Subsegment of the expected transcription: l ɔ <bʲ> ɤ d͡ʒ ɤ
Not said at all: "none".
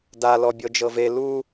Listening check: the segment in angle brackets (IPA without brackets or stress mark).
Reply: bʲ